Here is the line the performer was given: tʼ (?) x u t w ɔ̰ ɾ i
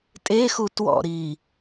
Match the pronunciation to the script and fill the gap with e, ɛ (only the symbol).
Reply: e